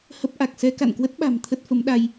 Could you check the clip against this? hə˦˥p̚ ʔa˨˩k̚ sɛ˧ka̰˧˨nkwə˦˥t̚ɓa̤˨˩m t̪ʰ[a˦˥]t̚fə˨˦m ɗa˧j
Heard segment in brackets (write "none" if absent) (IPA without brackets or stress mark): ə˦˥